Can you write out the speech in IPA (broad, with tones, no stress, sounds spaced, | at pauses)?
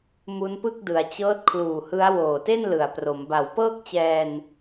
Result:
m u˦˥ n p ɯ˥˩ k̚ d ɯ˩˦ a̯ t͡ɕ ɤː˦˥ t̚ kʰ l uː˨˩ h ɯ˦˥ a̯ w oː˨˩ t e˥˩ n l ɯ˩˦ a̯ p r o˩˦ m b a˩˦ w p ɤː˥˩ k̚ t͡ɕ ɛː˧ n